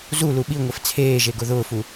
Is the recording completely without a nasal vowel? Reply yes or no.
yes